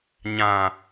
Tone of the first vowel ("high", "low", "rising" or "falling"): low